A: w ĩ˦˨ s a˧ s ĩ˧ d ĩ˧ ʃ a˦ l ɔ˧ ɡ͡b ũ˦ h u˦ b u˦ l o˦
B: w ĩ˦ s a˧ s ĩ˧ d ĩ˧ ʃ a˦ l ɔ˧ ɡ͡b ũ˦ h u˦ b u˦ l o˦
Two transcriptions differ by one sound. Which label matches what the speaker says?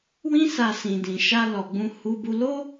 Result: B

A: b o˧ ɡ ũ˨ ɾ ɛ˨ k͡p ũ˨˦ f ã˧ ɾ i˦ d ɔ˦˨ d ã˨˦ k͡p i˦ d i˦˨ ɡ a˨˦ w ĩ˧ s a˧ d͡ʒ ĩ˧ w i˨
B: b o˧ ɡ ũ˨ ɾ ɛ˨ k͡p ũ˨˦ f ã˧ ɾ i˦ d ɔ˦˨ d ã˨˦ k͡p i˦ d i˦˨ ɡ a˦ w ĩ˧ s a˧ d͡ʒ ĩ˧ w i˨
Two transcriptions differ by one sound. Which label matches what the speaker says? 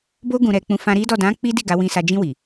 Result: A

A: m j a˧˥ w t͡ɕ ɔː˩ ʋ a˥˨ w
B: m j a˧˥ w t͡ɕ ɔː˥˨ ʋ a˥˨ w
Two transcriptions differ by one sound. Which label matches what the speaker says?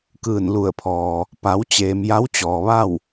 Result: A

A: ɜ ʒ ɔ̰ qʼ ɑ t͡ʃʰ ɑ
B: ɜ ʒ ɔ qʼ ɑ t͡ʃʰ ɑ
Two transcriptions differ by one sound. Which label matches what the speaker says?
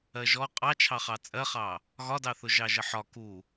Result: B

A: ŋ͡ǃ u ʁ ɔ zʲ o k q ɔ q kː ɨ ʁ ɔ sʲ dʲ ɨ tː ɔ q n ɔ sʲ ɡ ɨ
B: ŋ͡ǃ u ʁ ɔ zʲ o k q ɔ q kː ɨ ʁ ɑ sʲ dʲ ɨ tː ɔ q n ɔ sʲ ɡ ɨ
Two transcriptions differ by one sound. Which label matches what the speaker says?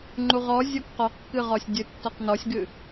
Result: A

